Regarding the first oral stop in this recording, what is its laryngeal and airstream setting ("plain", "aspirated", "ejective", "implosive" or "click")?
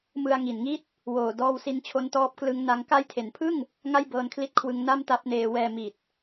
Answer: plain